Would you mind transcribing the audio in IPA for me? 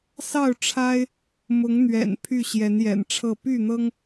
s ɑ˥˨ ʊ̯ ʈ͡ʂʰ a˦ ɪ̯ | m ʊ˨˦ ŋ n̪ ɥ ɛ̰˨˩ n pʰ y˥˨ ɕ j ɛ˨˦ n j ɛ̰˨˩ n ʈ͡ʂʰ ɤ˥˨ p y˥˨ n̪ ɤ˦ ŋ

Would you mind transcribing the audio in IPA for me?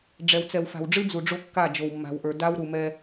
ɖ͡ʐ ɛ˨ w t͡s ɛ˨ w f a̤˨ w ɖ͡ʐ ɨ˦ d͡z u˨ ɖ͡ʐ o˦ kː a˦˨ d͡ʒ o˨ w mː a̤˨ w ʔ ə˞˨ d a˦ w ɾ u˨ m ɛ˦

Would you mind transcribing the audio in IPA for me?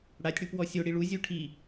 ɽ a tʲ ɽ u p w ɔ sʲ o ɽ i ɭ u zʲ u ʈʰ i

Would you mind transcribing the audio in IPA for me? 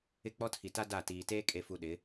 ɪ˦˨ k͡p ɔ˦ tʰ i˨ t a˦ d a˦˨ t iː˨ t eː˦ kʼ e˨ f u˨ ɗ ɪ˨˦

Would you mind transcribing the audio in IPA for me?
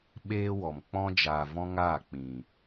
ɓ eː˦ w ɔ˨ m k͡p ɔ̃˧ d͡ʒ aː˨ v ɔ̃˧ ŋ aː˦˨ k͡p ĩ˨

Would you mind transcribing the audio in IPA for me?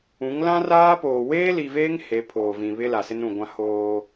ũ˨˦ ŋ l ã˦ r aː˦ p oː˨ w eː˦ l i˨ v eː˦ ŋ h e˨˦ pʰ oː˨ v ĩ˨ β ɪ˦ l a˨ s ɪ˦ n ũ˨ ɡʷ ã˦ h oː˦

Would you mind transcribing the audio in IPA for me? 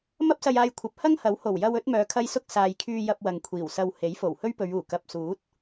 m ɐ˥ p̚ s ɐ˧ j aː˧ j kʷʰ ɐ˨˥ p̚ h ɐ˥ ŋ h ɐ˨˥ w h o˨˩ w j ɐ˧ w ɵ˨˥ t̚ m œː˨˧ kʰ ɐ˥ j s ʊ˥ k̚ s aː˨ j kʰ yː˧ j ɐ˧ p̚ w ɐ˨ ŋ kʷʰ iː˨˩ w s ɐ˧ w h e˨˥ j f o˨˩ w h ɵ˥ ɥ p ɵ˨˧ ɥ uː˨˩ k ɐ˨ p̚ s uː˨˥ t̚

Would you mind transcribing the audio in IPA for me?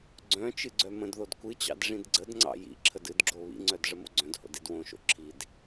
ɡ͡ǀ œ̃ t͡ʃ ɨ ɡ͡ǀ œ m ə̃ d ð o d kʷ ɨ t͡ɕ ɑ̰ d ʐ ĩ d ɡ͡ǀ ə d ŋ͡ǀ ɑ̰ j ḭ ǁʰ ə d ɨ d ɡ͡ǁ o β ḭ ŋ͡ǀ œ d ʐ ə m o̰ ɡ͡ǀ œ̃ d h o̰ d i d w õ ʃ o̰ ǁʰ i d

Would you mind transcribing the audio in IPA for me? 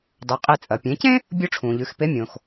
dˤ ɵ˩˧ qʼ e˧ t͡sʼ ɐ˩ pʲ ẽ˩˧ c ẽ˥ | bʲ o˥ ʈ͡ʂʰ ũ˩ ʎ ʉ˩˧ x p e˧˥ mʲ õ˩ x

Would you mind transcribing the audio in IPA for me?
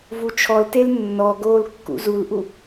v u t͡ʃʰ ɔ l t e l nː ɔ ɡ oː l kː ṵ z u l ʔ u

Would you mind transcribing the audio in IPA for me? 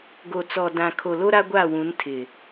ɡ o˨ t͡s ɔ˨ d ã˨ kʰ o˨ l o˦ ɾ a˦ ɡʷ a˦˨ w ũ˨˦ n tʰ ɪ˨

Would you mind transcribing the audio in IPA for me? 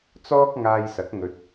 t͡s ɔː˥ k̚ ŋ aː˧ j s ɐ˨˥ k̚ ŋ ɵ˨ t̚

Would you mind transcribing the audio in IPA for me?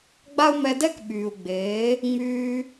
ɡ͡b a˦ u̯ m ɛ˧ d ɛ˦ k ɓ yː˨ u̯ ɡ͡b eː˨˦ | ŋ͡m yː˦

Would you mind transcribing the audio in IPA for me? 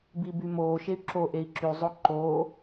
b i b y m oː ʃ e y̯ ǁ o ʔ e i̯ ǁ y zˤ o ǃ oː

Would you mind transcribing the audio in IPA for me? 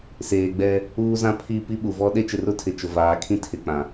s eː˨ ɡ͡b ɛ˦ | uː˦ z ã˦ pʰ i˦˨ p i˦ ɓ u˨ v ɔ˦ ɗ e˦ t͡ʃ ɪ˨ r ʊ˦ tʰ ɪ˨ t͡ʃ ʊ˨ v aː˨˦ kʰ ĩ˦ tʰ ɪ˨ k͡p ã˨

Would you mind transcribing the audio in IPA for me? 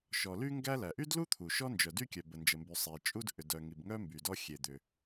ʃ ɔ˩ l y˥ ŋ ɡ æ˥ l æ˩ ʔ y˥ d l u˥ t̪ʰ u˩ ʃ ɔ˥ n d͡ʒ œ˩ d y˥ kʲ œ˩ b ə˩ n d͡ʒ ə˩ m b y˩ sˤ i˩ t͡ʃʼ u˥ d ʔ ʏ˩ d œ˩ ŋ i˩ b ŋ œ˥ m b y˩ d ɔ˥ xʲ e˩ d̪ ʏ˩

